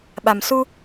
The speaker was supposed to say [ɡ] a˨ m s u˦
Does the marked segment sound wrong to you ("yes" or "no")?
yes